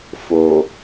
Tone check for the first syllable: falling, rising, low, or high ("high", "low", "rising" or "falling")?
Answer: low